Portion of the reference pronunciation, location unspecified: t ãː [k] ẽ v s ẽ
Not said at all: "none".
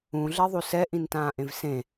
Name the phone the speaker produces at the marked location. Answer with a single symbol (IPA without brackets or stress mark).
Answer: ʔ